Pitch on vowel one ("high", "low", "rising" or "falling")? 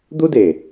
high